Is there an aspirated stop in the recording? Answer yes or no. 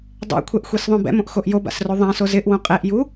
yes